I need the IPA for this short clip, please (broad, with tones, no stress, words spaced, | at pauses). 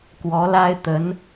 kwɔ˧˥la˥ɪ̯ t̪ə˧˥n